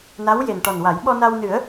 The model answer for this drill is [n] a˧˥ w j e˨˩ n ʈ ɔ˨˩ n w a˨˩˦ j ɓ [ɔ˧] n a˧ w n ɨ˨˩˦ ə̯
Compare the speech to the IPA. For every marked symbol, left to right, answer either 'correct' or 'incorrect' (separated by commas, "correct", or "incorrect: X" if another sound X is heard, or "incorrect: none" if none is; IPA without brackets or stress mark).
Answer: correct, correct